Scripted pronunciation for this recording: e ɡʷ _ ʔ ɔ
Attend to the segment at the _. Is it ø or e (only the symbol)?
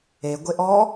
e